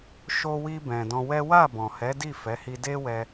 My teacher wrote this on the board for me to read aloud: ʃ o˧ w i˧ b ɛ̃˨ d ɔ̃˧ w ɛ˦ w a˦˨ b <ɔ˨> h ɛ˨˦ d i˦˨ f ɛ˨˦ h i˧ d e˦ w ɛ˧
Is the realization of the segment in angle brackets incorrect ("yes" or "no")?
yes